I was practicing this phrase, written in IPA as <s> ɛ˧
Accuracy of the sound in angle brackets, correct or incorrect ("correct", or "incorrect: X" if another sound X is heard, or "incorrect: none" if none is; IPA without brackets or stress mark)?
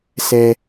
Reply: correct